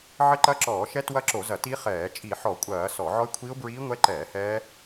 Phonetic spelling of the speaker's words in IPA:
ʕ ɘ˦˥ ǃ ɐ˦˥ ǁ ɔː˧˩˧ ʃ ɛ˦˥ t w ɐ˦˥ ǁ o˧˩˧ z ɐ˧˩˧ t i˦˥ χ ɛː˧˩˧ t͡ʃʼ i˧˩˧ ħ ɔ˧˩˧ kʷʼ ɐː˧˩˧ s ɔ˧˩˧ ʕ ɔ˦˥ ɪ̯ kʷʰ i˦˥ ʊ̯ b ɹ iː˦˥ ŋʷ ɛ˦˥ ǃ ɛː˧˩˧ h ɛː˦˥

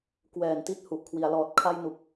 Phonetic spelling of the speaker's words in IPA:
k w ɛː˨˩ n t i˦˥ t̚ h u˨˩ ʔ kʰ w i˩˦ a̯ l ɔː˨˩ t̚ kʰ a˧ j n u˨˩ k̚

